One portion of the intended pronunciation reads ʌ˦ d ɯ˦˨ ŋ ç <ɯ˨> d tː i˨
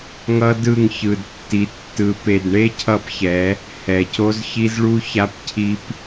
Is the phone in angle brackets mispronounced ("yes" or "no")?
no